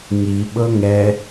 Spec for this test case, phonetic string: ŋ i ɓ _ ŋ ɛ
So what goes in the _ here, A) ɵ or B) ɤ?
B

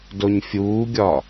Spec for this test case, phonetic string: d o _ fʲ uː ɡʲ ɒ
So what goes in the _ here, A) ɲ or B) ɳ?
A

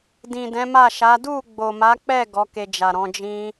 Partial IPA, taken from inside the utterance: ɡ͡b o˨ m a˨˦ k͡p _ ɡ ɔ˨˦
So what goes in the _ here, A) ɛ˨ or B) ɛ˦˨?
B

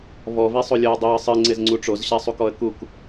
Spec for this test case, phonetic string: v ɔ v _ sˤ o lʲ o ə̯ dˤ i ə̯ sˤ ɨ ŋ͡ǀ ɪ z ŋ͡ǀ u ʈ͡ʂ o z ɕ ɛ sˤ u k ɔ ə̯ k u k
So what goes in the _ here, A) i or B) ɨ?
A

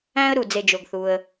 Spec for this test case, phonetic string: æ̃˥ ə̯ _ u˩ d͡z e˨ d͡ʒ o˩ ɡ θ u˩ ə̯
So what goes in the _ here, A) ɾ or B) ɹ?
A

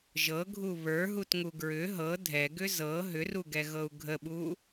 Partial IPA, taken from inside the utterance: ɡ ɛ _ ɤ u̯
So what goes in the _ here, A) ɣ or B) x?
A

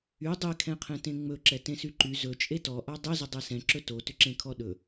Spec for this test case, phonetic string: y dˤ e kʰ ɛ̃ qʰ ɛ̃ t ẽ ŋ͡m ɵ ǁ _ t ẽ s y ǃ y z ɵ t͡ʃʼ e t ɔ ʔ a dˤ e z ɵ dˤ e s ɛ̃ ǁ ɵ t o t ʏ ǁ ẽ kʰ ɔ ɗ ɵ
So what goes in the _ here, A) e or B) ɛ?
B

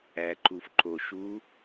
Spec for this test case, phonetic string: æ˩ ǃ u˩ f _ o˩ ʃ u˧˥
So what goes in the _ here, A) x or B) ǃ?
B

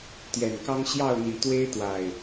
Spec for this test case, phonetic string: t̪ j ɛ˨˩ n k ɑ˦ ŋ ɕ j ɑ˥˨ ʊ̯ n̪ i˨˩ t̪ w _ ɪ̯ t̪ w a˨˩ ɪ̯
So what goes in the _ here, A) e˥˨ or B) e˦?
B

